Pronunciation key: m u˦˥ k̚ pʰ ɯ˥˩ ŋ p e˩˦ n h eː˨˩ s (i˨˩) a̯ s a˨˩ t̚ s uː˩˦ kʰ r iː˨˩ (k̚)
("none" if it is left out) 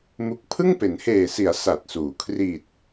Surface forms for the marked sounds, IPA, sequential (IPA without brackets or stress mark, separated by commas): i˩˦, t̚